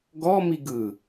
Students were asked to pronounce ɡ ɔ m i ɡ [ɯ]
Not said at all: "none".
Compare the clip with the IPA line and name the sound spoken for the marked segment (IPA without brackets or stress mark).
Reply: ɯ